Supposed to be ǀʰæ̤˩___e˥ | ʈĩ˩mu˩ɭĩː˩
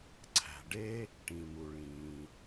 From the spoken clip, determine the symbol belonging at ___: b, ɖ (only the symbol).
ɖ